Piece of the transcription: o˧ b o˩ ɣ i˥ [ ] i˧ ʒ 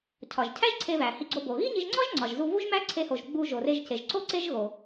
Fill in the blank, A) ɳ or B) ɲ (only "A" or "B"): B